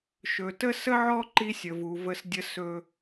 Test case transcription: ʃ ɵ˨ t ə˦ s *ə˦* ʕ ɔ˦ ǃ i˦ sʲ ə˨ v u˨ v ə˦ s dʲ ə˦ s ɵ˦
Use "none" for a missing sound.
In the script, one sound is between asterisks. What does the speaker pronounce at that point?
ə˦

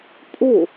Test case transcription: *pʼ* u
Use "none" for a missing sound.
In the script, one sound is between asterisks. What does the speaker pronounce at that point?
pʼ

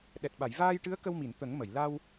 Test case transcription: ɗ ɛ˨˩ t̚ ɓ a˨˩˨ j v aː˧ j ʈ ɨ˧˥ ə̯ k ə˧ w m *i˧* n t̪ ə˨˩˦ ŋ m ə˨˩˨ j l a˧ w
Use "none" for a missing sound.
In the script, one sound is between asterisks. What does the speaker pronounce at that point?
i˨˩˨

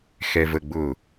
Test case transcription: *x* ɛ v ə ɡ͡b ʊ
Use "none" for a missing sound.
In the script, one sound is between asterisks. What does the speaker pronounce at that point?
x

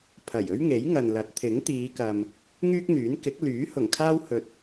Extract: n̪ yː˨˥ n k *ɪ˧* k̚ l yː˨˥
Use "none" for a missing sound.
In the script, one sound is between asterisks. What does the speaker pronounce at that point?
ɪ˨˥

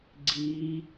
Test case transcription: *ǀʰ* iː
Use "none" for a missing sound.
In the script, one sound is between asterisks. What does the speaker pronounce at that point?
ɡ͡ǀ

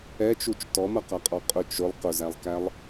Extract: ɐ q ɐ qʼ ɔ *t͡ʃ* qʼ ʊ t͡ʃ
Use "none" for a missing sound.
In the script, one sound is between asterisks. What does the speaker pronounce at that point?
none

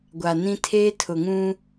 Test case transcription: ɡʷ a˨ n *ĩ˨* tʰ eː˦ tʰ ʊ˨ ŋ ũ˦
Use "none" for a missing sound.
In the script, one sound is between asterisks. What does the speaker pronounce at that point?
ĩ˦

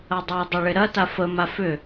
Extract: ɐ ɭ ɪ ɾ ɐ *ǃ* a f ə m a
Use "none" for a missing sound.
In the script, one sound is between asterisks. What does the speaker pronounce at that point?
t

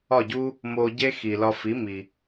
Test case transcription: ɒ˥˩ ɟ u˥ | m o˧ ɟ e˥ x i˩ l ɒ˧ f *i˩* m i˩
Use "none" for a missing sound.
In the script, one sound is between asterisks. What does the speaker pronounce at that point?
i˩˥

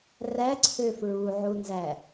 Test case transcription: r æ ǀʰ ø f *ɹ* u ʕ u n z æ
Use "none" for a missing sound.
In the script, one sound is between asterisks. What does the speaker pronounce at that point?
ɹ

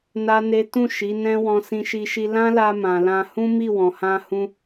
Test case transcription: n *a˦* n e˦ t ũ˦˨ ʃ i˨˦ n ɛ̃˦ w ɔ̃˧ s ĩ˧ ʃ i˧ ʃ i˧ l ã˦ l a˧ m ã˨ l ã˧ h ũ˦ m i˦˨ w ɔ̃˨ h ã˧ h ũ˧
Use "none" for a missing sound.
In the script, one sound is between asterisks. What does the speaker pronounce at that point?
a˦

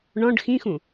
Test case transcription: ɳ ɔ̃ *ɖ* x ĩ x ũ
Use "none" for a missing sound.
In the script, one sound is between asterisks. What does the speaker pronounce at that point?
ɖ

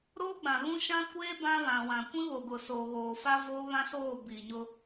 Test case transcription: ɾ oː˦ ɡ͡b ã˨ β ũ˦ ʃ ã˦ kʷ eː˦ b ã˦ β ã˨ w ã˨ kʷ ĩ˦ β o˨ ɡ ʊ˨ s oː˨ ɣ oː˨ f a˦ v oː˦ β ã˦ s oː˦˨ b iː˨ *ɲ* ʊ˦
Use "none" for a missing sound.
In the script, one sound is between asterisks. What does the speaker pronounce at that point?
ɲ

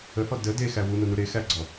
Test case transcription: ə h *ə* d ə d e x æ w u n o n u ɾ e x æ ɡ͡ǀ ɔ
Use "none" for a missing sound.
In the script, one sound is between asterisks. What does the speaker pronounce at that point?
ɔ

